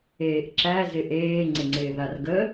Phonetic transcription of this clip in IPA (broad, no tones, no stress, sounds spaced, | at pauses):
eː ʔ ǁ æ z ɪ ʔ eː ŋ͡ǀ ɪ ŋ͡ǀ ɪː ð a r ɡ ə